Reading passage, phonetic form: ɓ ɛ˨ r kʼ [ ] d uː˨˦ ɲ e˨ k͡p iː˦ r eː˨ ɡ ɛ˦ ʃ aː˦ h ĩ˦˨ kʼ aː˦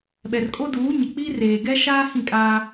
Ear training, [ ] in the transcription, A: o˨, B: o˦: B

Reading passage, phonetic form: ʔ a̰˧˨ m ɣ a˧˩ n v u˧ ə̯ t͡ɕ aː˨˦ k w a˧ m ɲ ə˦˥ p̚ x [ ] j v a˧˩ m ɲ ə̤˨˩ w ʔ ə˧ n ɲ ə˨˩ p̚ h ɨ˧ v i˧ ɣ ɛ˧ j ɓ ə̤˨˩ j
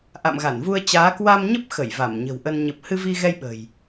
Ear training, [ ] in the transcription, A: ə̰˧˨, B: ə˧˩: B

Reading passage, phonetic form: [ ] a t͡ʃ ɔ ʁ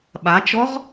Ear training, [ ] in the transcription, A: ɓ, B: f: A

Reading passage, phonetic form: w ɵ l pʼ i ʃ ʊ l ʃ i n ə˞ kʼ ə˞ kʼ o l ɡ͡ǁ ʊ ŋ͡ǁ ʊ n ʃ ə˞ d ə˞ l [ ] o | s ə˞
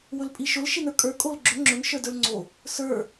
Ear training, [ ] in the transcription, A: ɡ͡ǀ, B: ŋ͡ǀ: B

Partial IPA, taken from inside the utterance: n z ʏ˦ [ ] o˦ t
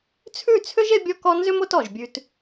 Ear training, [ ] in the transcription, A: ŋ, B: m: B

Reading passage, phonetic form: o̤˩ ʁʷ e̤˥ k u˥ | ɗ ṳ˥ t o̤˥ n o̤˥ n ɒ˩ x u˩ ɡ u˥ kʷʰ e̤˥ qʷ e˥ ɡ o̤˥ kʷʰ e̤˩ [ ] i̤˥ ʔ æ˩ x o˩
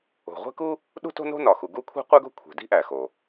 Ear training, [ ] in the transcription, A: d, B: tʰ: A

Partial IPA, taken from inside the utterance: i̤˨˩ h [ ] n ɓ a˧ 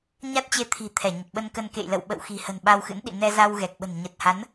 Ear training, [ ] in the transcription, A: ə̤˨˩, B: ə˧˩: A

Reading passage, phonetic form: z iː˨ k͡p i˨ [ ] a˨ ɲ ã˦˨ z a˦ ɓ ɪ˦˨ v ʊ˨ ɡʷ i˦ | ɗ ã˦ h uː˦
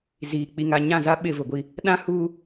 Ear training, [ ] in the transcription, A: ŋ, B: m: A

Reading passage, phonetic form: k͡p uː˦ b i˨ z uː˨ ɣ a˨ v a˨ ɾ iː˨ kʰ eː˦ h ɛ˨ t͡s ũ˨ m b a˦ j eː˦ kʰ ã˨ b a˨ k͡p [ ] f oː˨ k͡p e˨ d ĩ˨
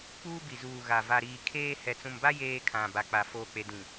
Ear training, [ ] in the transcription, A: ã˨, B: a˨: B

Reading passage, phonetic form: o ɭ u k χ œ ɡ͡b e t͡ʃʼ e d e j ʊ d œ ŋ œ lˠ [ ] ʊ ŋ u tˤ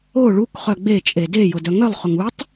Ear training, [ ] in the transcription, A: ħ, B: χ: B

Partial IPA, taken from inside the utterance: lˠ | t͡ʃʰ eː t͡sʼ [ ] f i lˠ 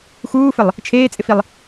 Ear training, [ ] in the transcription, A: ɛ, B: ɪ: B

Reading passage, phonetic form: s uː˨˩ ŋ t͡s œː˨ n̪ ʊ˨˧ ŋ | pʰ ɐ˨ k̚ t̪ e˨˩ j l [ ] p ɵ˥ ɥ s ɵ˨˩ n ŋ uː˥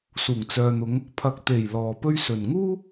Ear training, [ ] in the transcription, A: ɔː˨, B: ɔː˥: A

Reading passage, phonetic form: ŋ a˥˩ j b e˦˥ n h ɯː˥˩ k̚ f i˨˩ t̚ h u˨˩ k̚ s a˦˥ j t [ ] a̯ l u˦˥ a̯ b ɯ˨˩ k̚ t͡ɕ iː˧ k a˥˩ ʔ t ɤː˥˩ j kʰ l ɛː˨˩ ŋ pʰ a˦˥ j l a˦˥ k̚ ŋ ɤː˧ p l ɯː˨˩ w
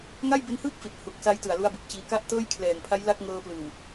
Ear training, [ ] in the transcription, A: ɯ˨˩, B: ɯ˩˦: A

